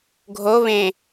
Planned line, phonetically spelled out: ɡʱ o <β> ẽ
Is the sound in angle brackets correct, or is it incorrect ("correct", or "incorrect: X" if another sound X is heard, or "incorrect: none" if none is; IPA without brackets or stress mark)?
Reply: correct